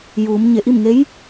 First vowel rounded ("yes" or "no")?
yes